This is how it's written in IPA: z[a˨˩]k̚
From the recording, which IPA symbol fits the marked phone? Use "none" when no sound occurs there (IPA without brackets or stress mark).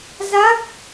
a˦˥